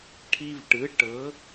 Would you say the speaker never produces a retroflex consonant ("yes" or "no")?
no